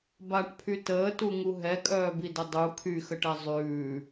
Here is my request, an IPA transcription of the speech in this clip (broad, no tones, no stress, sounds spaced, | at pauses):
b a ʈ pʰ y t əː t u ŋ u ɦ ɛ kʼ œː b i d ə dˤ u kʰ y x ə ʈ ɛ zˤ ʉː